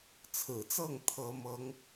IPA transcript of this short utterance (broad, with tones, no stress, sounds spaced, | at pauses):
t͡sʰ ɹ̩˨˩ t͡s ɤ˥˩ ŋ t̪ʰ ɤ˥ m ɤ˧˥ ŋ